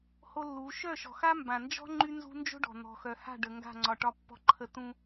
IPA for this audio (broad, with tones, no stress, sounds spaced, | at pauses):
h o˦ lː u˨˦ ʃ œ˦˨ ʃ ɔ̤˨ x a˦ m b ã˨ n d͡ʒ ɔ̤˦ ŋ͡ǃ y˦ n z ṳ˦ n d͡ʒ o̤˦ ɖ ɔ̤˨ n̪ ɔ̤˨ x œ˨ h a̤˦˨ ɖ ə˨ ŋ ɡ a̤˦˨ ŋ͡ǀ ɒ˨ ʈ ɒ˦ pː ɔ̤˦ ǃʰ ə˦ t ũ˦